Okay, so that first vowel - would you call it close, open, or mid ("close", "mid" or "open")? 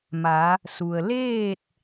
open